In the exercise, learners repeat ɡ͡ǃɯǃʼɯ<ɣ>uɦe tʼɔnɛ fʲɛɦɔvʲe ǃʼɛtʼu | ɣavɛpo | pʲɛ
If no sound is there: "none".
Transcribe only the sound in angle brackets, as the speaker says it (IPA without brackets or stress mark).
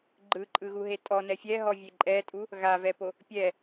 ɣ